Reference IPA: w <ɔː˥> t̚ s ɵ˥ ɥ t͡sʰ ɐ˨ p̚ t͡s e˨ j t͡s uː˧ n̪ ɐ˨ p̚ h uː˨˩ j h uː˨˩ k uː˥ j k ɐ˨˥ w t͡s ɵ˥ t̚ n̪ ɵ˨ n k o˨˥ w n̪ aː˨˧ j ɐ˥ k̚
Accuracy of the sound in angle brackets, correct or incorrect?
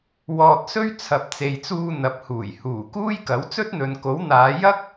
incorrect